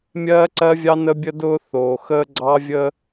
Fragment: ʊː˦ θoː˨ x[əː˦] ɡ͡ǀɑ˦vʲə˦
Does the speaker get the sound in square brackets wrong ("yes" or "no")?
no